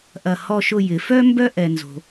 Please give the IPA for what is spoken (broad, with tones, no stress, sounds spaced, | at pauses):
ʔ ɐ˧˩ h ɔ˥˧ ʃ ʊ˥˧ j ɪ˩˧ f œ˥ m b œ˥ ʔ ɛ˧ n z o̤˧